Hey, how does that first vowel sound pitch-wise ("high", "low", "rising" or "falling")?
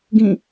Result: falling